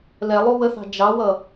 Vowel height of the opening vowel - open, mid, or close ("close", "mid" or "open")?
mid